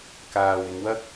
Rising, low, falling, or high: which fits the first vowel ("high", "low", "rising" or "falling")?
low